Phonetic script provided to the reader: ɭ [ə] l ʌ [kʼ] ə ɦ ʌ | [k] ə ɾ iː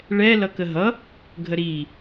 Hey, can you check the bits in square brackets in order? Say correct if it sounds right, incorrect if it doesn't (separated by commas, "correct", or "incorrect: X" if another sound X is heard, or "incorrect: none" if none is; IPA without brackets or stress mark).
incorrect: ɛ, incorrect: k, incorrect: ɡʱ